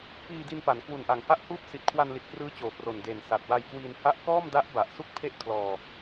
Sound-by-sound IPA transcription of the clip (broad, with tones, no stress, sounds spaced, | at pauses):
p iː˧ d i˧ n p a˩˦ n k w u˨˩ n ʔ a˨˩ ŋ h a˦˥ ʔ h uː˦˥ p̚ s i˨˩ t̚ kʰ w a˧ n l i˨˩ t̚ k r ɯː˦˥ t͡ɕ oː˨˩ p r o˨˩ n d eː˨˩ n s a˨˩ t̚ w a˧ j k w iː˧ n h a˦˥ ʔ k ɔː˥˩ m d a˦˥ ʔ b a˨˩ ʔ s u˥˩ k̚ pʰ e˥˩ ʔ kʰ l ɔː˧